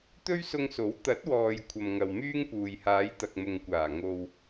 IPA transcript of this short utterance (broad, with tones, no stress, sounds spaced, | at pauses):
t̪ ɵ˥ ɥ s ʊ˧ ŋ s o˨˥ w t̪ ɐ˨˥ t̚ w ɔː˨ j kʷʰ ɐ˨ m ŋ ɐ˨ w m yː˥ ŋ p uː˨ j h aː˨˧ j t̪ ɐ˨ k̚ m ʊ˨ ŋ kʷ aː˨˩ ŋ o˨ w